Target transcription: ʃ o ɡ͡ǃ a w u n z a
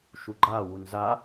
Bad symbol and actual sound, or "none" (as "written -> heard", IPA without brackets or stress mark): o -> u